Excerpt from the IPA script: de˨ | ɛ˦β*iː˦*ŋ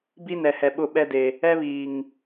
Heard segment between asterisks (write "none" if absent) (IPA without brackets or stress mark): iː˨